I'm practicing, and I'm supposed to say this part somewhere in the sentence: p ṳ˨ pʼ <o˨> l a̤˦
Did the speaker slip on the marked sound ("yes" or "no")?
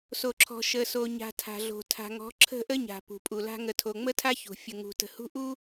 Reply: yes